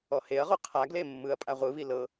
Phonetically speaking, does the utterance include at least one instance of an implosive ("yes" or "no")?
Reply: no